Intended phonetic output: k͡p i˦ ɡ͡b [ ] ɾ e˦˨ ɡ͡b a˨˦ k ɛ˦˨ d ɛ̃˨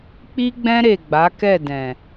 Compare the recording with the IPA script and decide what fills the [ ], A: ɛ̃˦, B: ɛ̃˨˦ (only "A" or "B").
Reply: A